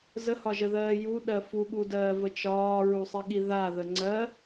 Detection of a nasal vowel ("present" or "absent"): absent